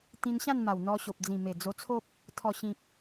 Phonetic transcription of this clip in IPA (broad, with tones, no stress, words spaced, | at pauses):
t̪ĩ˧nɕã˥˧nma˨˩w n̪ɔ˧ɕo˨p̚ d͡zĩ˨˩me˨˩ d͡zo˧t͡sʰo˦p̚ | t̪ʰɔ˨˩ɕĩ˨k̚